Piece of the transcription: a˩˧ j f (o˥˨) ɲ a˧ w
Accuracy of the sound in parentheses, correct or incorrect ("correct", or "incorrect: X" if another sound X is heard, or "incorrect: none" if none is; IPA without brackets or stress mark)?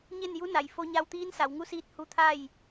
incorrect: o˧